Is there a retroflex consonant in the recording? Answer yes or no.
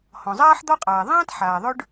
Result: yes